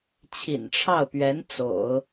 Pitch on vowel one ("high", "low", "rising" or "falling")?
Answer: low